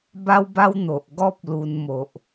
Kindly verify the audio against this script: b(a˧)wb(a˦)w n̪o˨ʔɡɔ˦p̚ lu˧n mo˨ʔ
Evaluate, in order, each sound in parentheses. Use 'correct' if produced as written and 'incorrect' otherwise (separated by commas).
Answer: incorrect, correct